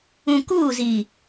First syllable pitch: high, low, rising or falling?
low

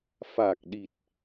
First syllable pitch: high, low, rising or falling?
low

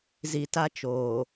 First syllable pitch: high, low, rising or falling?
low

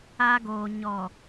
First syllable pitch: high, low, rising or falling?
high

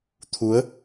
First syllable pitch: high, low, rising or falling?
rising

